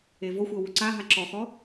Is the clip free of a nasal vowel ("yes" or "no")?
yes